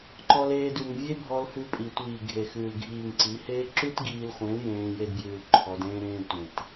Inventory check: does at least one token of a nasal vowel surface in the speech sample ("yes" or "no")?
yes